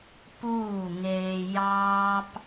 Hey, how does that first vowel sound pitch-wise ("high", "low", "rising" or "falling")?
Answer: falling